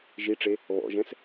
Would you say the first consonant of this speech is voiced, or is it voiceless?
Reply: voiced